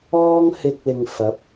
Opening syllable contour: high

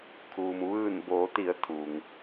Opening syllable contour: low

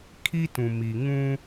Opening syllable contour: high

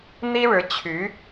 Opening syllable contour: high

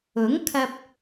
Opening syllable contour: rising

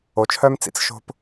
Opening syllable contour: low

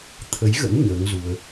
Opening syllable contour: rising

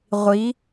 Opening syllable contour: rising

